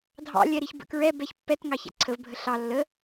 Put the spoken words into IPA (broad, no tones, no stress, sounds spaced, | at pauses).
dʱ ɑ̰ lʲ ɛ ɾ i ç b ə̰ k ɹ ɛ b ɛ ç pː ɛ t ŋ ɑ ç æ̰ ǀʰ ə v bʱ ə ɬ ɑ lː ə